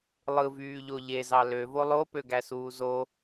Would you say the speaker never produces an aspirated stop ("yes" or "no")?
yes